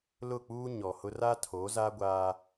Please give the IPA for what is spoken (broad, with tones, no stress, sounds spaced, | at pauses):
l ʊ˦˨ k͡p uː˦ ɲ ɔ˨ h ʊ˦ r a˦ tʰ oː˨˦ z aː˦ ɡʷ aː˦